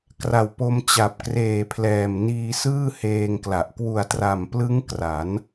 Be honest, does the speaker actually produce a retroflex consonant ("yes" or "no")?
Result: no